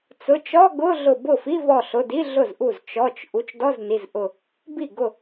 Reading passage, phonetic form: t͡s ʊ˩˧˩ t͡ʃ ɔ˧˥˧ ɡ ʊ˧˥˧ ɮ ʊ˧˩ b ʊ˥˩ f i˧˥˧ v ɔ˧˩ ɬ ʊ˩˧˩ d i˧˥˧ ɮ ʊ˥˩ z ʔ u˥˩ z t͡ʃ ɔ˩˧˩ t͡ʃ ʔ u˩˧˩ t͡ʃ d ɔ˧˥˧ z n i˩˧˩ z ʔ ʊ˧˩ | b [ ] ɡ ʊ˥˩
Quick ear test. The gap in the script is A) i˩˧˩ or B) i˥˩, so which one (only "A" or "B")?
B